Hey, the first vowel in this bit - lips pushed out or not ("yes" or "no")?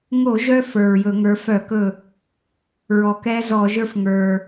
yes